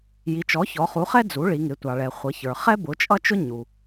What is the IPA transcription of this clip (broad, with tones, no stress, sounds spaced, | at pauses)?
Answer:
j i˩˧ t͡ʃ ɔ˩˥ ç ɔ˩˧ χ u˩˥ χ ɛ˥ d͡z u˩˥ ɭ i˩˧ ŋ ɪ˩˧ tʷ ɑ˩ ɭ ɛ˩ χʷ ʌ˩˧ ç ə˞˩ χ ɛ˥ b ʊ˩˥ t͡ʃʼ ʌ˥ t͡ʃ ʊ˥ ɲ u˩